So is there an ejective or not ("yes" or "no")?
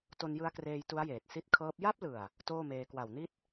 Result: no